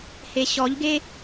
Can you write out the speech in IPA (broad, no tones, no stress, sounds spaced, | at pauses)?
h e ɕ ɔ ʎ ɡ e